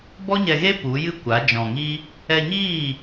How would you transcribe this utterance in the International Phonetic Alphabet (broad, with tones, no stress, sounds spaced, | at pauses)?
b ɔ˦ ɲ ɛ˧ ɣ e˦ p u˨˦ j ɨ˦ kʷ a˨˦ d͡ʒ ɔ̃˨ ŋ i˦ | ɛ˧ ɲ iː˦˨